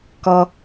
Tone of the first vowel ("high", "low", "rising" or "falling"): low